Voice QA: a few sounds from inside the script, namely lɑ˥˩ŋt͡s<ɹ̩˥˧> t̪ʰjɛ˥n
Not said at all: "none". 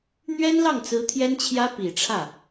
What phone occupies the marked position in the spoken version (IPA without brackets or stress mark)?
ɹ̩˧˥